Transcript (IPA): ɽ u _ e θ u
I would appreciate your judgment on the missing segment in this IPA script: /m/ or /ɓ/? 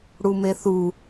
m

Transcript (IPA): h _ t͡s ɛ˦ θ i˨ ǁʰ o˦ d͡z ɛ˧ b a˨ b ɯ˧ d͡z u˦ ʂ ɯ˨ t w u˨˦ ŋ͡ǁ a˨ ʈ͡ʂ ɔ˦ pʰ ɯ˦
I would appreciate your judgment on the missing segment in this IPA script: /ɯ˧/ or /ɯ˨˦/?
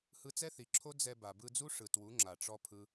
ɯ˧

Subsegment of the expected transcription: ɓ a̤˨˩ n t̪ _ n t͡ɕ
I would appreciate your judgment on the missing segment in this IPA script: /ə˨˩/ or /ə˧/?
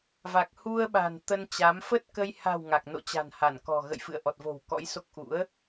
ə˧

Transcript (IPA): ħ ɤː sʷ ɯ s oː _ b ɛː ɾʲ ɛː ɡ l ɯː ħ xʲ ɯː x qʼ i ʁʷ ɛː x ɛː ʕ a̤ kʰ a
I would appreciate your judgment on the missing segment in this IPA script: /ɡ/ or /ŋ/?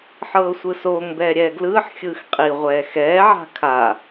ŋ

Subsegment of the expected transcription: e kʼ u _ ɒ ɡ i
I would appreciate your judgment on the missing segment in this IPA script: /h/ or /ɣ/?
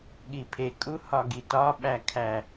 h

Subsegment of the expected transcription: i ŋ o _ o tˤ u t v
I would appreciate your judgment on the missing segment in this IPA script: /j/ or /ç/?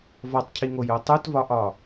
j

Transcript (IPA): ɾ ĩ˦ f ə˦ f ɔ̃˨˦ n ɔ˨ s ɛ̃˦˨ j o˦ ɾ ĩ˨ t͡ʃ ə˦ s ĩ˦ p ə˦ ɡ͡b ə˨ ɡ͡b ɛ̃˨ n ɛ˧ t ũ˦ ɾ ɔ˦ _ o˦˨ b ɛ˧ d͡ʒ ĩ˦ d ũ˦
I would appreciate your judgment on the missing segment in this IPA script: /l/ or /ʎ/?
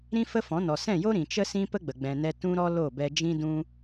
l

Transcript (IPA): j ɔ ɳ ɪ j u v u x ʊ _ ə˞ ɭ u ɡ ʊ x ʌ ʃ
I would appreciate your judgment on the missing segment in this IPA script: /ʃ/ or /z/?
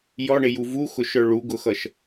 ʃ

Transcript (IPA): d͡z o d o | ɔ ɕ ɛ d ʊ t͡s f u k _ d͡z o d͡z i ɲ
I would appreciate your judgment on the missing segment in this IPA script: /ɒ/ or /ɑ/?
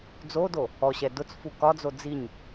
ɒ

